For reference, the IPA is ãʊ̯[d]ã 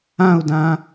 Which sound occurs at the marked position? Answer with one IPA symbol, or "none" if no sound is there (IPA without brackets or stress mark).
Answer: d